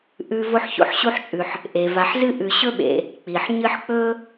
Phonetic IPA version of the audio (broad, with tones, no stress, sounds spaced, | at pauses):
ʔ ʉ˦ v o˥ ħ ç o̰˦ ħ ɕ u˥ ħ t͡ʃʼ ʉ˨ ħ | ʔ e˩ v a˨ ħ z ɨ˥ ʔ ʉ˨ ɕ ɵ˥ ɓ ḛ˨ | k͡p i˩ ħ ɲ ɨ˦ ħ k͡p ɵ˥